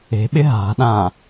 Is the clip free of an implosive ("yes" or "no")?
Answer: no